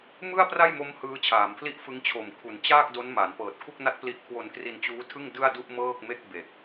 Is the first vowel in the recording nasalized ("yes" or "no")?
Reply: no